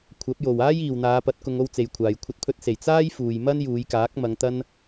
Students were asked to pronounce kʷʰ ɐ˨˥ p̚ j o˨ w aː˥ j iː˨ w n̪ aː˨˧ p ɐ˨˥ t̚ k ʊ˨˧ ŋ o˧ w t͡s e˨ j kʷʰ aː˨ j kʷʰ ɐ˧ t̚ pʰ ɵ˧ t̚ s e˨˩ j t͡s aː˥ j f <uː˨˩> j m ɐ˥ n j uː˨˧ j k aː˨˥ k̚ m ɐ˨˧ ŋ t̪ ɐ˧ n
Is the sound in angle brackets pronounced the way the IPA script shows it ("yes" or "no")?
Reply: no